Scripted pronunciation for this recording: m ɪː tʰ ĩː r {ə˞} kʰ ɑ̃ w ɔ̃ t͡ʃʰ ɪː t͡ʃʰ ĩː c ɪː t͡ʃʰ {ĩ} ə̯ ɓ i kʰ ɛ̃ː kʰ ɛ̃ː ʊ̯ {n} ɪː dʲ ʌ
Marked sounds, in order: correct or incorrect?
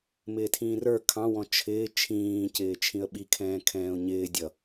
correct, correct, incorrect: ɲ

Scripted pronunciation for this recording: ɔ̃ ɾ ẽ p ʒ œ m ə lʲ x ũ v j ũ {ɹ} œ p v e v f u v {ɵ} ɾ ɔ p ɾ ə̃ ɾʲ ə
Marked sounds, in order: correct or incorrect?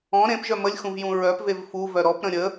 correct, incorrect: œ

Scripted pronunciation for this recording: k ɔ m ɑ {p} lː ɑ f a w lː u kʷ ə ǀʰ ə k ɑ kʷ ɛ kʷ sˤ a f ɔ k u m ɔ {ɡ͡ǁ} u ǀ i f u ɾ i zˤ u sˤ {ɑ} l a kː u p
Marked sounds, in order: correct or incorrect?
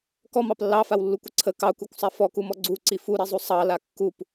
correct, incorrect: ɡ͡ǀ, correct

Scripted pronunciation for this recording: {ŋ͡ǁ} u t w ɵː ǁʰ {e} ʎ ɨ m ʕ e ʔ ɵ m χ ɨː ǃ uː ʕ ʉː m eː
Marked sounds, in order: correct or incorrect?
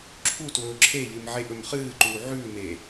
incorrect: ǁʰ, correct

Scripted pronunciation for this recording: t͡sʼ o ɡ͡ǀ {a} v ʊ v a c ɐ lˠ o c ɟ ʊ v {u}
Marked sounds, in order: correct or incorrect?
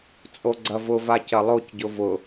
incorrect: ɐ, incorrect: ʊ

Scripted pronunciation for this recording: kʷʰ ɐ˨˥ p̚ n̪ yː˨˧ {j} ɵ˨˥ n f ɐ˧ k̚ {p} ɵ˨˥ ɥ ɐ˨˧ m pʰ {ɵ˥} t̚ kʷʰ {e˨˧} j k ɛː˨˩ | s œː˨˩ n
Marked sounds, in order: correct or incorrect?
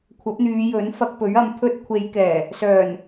correct, correct, correct, correct

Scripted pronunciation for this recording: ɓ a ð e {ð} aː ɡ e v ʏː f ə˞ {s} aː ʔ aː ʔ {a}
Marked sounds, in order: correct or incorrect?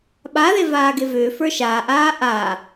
incorrect: v, incorrect: ʃ, correct

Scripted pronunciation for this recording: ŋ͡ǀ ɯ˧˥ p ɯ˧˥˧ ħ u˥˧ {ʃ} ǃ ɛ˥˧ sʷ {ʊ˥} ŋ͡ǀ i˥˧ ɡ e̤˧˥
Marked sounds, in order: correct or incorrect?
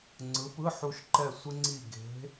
correct, incorrect: ɯ˥

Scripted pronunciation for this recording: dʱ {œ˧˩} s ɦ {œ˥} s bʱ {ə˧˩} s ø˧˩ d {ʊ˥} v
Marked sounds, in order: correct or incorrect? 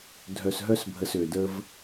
correct, correct, correct, incorrect: ə˥

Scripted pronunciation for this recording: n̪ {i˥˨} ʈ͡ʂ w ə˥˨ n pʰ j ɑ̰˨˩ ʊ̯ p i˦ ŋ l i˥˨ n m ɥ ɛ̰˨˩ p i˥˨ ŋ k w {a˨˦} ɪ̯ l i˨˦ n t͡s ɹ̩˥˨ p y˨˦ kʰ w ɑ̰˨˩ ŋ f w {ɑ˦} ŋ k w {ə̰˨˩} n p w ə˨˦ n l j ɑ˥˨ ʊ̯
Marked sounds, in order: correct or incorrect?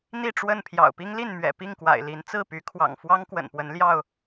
correct, incorrect: a̰˨˩, correct, correct

